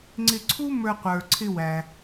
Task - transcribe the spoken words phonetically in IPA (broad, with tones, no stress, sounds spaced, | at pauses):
ŋ͡ǀ ɪ˧ ǀʰ u˥ m ə˞˧ qʷ ə˞˩ ǀʰ ɪ˧ w æ˩